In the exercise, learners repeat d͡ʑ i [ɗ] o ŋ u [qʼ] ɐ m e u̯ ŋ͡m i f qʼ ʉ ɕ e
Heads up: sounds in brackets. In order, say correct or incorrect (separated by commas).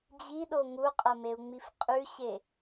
correct, correct